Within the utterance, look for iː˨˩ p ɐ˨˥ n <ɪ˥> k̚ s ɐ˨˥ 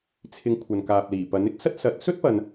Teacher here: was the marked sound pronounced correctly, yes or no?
yes